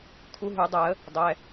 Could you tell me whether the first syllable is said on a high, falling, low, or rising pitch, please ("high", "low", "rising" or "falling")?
rising